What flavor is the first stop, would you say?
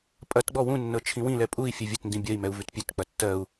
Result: ejective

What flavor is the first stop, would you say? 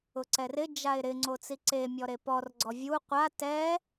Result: click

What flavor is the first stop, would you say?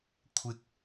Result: aspirated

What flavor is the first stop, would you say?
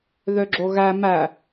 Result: click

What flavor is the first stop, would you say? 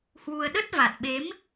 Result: implosive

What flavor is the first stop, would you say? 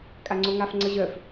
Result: ejective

